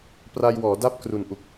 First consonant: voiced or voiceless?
voiceless